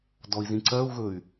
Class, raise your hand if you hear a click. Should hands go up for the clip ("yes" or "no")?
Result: yes